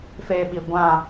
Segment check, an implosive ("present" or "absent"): present